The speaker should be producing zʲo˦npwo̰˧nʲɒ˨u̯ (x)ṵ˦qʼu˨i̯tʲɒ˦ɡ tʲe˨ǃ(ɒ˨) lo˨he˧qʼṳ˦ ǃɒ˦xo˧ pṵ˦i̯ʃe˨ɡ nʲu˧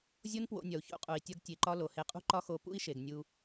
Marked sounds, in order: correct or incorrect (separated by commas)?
incorrect, incorrect